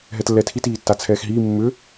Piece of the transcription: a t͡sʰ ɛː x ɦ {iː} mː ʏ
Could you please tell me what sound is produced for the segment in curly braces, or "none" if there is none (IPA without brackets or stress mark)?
iː